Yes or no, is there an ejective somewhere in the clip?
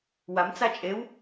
yes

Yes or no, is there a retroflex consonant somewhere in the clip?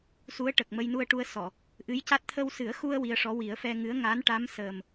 yes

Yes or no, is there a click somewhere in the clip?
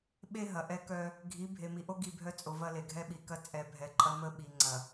yes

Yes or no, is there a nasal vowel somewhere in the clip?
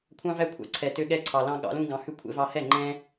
yes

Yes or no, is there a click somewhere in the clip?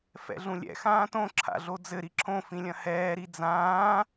yes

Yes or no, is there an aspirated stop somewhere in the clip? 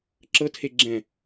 yes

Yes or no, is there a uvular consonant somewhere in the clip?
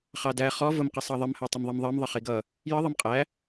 yes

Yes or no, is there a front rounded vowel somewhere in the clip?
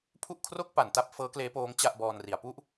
no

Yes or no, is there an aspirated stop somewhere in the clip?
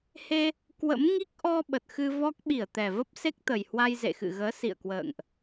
no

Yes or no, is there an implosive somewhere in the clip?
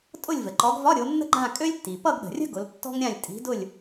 yes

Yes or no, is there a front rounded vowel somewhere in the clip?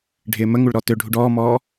yes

